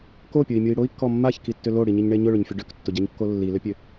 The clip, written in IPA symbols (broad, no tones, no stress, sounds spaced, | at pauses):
k o pʲ ʊ i̯ mʲ u i̯ ɽ o i̯ kː ɔ mː a ç k i tː ʏ l o ɽ i ɲ i ɲ ɳ e ɲ ʊ ɭ ʏ ɲ fʲ o ɖ ø k tː ʊ ɟ a ɲ kː o lː i l ʏ pʲ ø